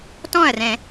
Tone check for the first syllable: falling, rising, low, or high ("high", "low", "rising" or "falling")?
falling